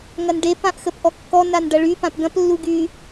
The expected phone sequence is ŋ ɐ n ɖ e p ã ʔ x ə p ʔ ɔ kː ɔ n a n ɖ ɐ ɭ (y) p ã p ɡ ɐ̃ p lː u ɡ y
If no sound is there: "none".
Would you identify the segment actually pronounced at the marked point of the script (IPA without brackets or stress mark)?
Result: y